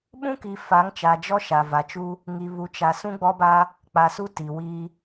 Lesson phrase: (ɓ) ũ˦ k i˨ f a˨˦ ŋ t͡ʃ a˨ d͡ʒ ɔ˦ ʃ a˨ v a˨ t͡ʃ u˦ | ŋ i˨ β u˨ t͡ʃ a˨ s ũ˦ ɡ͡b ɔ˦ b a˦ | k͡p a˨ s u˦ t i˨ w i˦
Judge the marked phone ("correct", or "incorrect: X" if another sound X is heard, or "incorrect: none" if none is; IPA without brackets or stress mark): correct